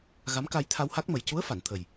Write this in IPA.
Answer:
ɣ a˧˥ m k a˧ j t̪ʰ a˧ w h a˦˥ k̚ m ə˨˩ j c u˧˥ ə̯ f a˨˩˨ n t̪ʰ ə˨˩ j

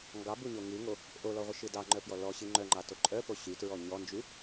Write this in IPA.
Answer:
ŋ ɡ ɑ b u ɲ o ŋ ɨ ŋ o | ʔ o l ɔ ʁʷ ə ʃ ɨ d ɑ ŋ͡ǃ œ p j ɔ l ɔ ɕ ɨ ŋ͡ǃ œ ŋ͡ǃ ɑ t o ǃʼ œ p o ɕ y t ɹ ɔ ɲ ɔ n d͡ʒ y

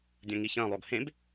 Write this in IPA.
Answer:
dʲ ɐ̃ ŋ i ç ɐ̃ lˠ o ɡ h ẽ b

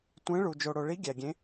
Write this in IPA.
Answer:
tʷ ẽ˧˥ ɭ u˨ d͡ʒ o˨ ɽ o˨ ɭ i˧˥ ɡʲ æ˨ ɡʲ ẽ˧˥

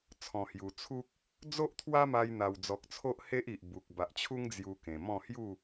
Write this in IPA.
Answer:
t͡sʰ ɔ̃˨˩ h j u˨˩ t͡sʰ u˦ k̚ | d͡z o˦ ʔ t̪ʰ w a˦ m a˧ j n̪ a˨˩ w d͡z ɔ˨ k̚ t͡sʰ o˦ ʔ h e˦ ʔ i˨ ʔ b u˨ k̚ b a˨ ʔ t͡ɕʰ u˦ ŋ d͡z j u˧ k ẽ˨˩ m ɔ̃˥˧ h j u˥˧

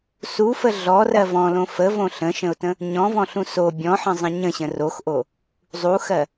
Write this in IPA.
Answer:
s u f ə ɮ ɔ r ɜ v ɔ̃ l õ f ə v õ ɬ ə̃ ʃ ə̃ ʊ̯ t ə̃ | ɲ ɔ̃ v ɔ̃ ɬ ũ s o bʲ ɔ̃ ħ ə̃ zˤ ə̃ ɲ ə̃ ɕ ə̃ r o x ʔ o | zˤ u x ɜ

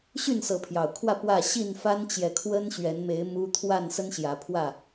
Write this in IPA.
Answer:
ɕ y˥˨ n s ɤ˨˦ pʰ j ɑ˨˩ ʊ̯ kʰ w ä˥˨ p w ä˥˨ ɕ i˥˨ n f a˦ n t͡ɕ j ɛ˨ kʰ w ə˦ n ɕ ɥ ɛ˨˦ n m e˨˦ ɪ̯ m u˦ t̪ʰ w a˥˨ n s ə˦ n ɕ j ä˨˦ pʰ w ä˥˨

